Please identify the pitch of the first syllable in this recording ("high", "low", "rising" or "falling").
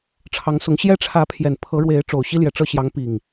rising